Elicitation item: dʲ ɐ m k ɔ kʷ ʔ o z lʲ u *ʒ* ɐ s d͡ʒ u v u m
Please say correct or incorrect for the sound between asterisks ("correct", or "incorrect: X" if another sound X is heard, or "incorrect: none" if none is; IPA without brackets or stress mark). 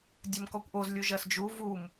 correct